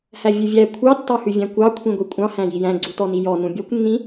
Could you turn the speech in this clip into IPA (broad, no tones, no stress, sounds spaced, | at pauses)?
h æ vʲ ʉ vʲ æ kʷʰ ɑ tː ɑ h ʉ vʲ æ̃ kʷ ɑ kʷʰ ĩ ɡʷ i kʷʼ ɑ̃ h æ̃ j i j æ̃ ɡ͡ǀ u t ɔ n i j ɔ n ũ bʲ ɔ kʷ nː ĩ